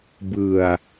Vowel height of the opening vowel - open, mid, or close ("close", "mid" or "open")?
close